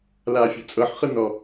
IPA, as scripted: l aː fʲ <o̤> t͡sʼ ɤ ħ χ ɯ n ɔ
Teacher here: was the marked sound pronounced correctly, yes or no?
yes